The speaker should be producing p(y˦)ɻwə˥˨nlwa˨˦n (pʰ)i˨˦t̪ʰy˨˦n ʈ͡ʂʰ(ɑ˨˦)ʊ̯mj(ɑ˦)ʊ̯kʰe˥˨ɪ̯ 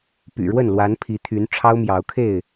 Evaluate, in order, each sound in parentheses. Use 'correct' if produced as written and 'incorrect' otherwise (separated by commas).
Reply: incorrect, correct, incorrect, incorrect